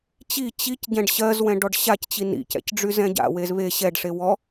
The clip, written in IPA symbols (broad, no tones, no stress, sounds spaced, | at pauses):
t͡ɕ i t͡ɕ i c ɟ ɛ̃ ɖ ɕ ɜ z w ɛ̃ ɖ ɔ ɖ ɕ a c t͡ɕ i n ḭ c ɛ̰ c ɖ͡ʐ y z ɛ̃ ɟ a̰ w e z β e ɕ ɛ ɖ ʂ e w ɔ